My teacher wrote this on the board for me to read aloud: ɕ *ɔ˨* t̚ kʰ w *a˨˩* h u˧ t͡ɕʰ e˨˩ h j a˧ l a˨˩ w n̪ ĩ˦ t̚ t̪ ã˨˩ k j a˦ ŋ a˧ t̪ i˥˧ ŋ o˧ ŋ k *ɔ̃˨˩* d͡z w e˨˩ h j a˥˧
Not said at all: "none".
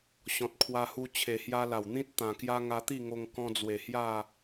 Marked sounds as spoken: ɔ̃˨, a˧, ɔ̃˧

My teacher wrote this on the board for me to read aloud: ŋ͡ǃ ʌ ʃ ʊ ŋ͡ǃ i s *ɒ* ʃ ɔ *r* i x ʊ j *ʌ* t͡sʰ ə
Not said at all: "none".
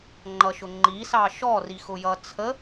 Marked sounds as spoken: ɑ, r, ʌ

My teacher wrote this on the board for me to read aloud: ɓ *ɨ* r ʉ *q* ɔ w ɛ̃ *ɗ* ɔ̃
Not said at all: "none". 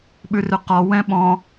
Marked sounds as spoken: ʉ, q, ɓ

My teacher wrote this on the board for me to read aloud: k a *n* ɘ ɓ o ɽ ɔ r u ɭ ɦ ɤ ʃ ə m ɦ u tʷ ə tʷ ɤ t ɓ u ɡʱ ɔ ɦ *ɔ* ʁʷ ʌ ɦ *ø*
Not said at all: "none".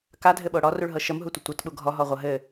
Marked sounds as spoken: dʱ, ɔ, ɘ

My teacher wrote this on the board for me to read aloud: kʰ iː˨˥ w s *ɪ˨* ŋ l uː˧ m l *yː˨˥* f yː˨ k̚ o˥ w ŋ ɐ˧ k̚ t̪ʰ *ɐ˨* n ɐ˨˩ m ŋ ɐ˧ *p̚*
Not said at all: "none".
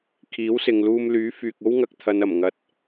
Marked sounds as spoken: ɪ˨, yː˨˥, ɐ˧, t̚

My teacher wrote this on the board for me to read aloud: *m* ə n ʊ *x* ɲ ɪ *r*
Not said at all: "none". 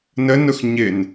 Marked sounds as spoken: n, x, n

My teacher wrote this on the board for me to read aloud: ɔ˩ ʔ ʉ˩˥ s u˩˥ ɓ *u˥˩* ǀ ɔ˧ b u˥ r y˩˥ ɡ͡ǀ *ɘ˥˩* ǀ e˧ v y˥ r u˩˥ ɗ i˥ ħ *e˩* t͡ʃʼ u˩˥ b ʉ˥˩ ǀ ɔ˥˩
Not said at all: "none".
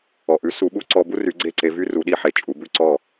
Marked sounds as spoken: u˧, e˥˩, e˩

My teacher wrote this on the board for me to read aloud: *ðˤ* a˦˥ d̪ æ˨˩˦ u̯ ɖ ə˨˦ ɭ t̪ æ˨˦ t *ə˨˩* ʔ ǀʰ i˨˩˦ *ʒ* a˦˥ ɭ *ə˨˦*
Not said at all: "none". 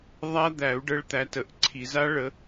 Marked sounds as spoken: ðˤ, ə˨˩, z, ə˨˦

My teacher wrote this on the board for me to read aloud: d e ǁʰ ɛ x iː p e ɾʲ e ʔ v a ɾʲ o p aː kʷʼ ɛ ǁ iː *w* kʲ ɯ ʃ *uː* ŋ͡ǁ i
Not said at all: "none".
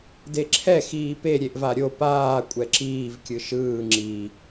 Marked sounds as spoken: v, ɯː

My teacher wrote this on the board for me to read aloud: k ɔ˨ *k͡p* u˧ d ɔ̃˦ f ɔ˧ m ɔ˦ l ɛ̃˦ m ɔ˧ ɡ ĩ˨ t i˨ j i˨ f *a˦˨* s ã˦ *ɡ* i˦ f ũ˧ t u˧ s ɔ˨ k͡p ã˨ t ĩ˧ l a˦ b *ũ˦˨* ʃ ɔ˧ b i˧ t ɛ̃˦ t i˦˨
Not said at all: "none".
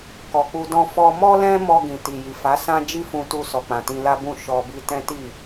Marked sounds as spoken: k͡p, a˨˦, d͡ʒ, ũ˦˨

